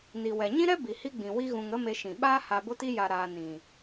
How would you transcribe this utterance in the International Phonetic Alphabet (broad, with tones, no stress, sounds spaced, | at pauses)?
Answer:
n i˨ w ɛ˨ ɲ ĩ˦ ɾ ɛ˦ b i˨ h i˦ ɡ͡b ĩ˨ w i˦ ɣ ũ˧ ŋ ə˦ m e˧ ʃ ĩ˨ ɓ aː˦ h a˧ b o˦ t i˦ j a˧ ɾ aː˧ n ĩ˨